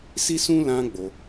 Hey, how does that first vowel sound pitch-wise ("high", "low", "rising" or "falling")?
high